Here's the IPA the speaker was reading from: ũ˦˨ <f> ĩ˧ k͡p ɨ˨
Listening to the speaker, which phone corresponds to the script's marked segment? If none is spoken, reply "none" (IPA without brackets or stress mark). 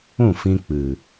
f